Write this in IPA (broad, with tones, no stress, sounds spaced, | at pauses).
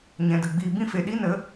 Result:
ɲ ɛ̃˨ d ə˨ ɡ͡b iː˨ b ĩ˦ f e˨ ɗ i˦ n ə˨˦